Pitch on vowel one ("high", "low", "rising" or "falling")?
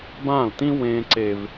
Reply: falling